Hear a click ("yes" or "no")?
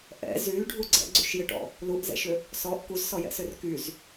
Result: yes